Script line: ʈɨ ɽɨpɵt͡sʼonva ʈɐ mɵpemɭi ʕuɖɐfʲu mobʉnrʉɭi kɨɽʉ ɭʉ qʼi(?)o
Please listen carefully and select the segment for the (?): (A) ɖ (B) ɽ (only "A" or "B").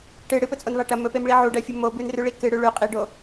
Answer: A